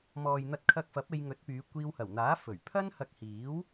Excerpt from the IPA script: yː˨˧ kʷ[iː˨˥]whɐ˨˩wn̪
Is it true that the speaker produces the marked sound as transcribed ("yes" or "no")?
no